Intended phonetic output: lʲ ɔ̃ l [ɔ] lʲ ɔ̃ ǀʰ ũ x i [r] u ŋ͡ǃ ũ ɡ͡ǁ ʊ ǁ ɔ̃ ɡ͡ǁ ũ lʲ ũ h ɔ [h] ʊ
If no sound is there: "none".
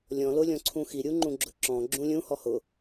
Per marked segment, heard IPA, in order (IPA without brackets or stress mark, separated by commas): ʊ, ɾʲ, h